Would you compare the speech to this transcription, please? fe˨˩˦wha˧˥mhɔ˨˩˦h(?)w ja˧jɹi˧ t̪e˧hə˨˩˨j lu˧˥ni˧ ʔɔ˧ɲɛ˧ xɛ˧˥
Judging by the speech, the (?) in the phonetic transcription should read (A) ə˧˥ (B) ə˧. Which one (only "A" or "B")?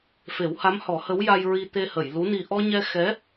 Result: A